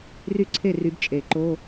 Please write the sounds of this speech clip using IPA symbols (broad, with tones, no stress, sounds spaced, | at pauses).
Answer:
r y˥˩ ǀʰ e˥˩ r y˨˩˦ b t͡ʃʼ e˨˩˦ ǃ o˧˥˧